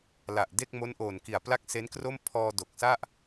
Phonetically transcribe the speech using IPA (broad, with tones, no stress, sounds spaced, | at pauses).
l a˨˩ ʔ d e˥˩ k̚ m o˦˥ n ʔ oː˨˩ n k i˨˩ a̯ p l a˥˩ k̚ s e˦˥ n k r o˥˩ m pʰ ɔː˧ d o˨˩ k̚ s a˥˩ ʔ